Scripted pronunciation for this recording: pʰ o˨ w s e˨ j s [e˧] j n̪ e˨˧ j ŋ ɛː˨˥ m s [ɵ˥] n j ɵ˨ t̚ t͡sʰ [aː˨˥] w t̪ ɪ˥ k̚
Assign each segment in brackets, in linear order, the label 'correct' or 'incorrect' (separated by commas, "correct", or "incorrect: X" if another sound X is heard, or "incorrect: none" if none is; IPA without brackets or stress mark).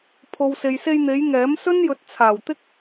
correct, correct, incorrect: aː˨˩